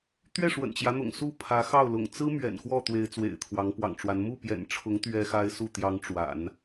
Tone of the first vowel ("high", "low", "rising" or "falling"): falling